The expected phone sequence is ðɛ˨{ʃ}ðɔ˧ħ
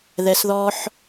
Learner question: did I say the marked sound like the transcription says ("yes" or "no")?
no